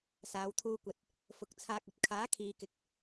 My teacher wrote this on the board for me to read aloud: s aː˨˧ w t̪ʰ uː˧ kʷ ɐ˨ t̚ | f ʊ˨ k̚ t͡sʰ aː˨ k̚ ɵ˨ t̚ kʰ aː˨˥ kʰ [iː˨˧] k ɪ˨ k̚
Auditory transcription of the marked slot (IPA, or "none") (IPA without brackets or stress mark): iː˨˧